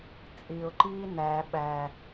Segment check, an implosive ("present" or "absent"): present